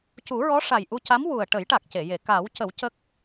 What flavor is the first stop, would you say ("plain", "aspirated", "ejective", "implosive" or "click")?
plain